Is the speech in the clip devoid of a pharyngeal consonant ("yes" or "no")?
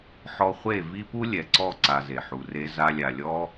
no